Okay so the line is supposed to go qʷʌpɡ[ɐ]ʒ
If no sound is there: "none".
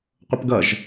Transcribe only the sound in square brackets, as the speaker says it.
ɐ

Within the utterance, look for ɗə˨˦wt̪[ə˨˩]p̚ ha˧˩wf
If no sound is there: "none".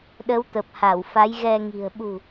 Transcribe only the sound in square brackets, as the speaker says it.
ə˨˩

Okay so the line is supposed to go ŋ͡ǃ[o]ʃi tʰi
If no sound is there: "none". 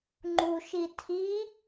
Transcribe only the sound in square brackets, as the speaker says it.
u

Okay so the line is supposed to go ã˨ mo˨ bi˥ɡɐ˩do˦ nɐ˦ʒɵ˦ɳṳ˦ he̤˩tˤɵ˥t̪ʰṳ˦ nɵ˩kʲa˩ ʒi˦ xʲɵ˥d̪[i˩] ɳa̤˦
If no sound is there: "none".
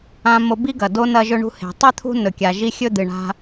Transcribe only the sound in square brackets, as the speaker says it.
ɨ˩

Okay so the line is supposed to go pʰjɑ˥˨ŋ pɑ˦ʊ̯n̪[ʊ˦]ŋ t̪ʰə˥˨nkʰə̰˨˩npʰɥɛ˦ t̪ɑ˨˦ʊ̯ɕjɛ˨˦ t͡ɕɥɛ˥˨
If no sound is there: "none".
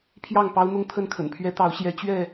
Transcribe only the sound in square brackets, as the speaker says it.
ʊ˦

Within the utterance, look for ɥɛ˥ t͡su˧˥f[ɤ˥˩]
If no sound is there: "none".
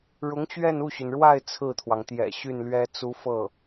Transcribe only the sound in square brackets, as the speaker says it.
ɤ˥˩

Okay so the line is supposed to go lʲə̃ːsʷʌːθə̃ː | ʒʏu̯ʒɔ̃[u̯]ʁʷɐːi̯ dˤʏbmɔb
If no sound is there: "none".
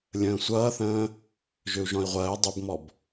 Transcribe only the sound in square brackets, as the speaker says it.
i̯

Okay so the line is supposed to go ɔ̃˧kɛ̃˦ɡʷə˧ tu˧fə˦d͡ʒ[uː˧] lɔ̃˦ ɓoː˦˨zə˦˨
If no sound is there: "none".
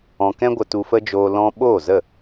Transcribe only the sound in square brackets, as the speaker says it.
oː˧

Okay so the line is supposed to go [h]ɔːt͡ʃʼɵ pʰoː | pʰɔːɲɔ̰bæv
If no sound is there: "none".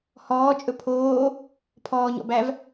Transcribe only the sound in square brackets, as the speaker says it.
h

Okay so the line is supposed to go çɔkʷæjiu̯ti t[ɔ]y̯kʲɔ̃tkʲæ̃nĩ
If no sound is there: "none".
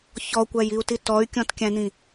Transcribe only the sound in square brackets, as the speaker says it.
ɔ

